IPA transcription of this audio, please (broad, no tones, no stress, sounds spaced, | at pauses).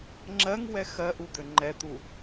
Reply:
ŋ͡ǁ ɜ ŋ w ɛ x ɜ ʔ u d̪ ø ŋ͡ǃ ɛ t̪ u